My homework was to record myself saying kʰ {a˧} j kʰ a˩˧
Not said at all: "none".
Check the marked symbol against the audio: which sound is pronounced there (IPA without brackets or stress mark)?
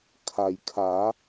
a˩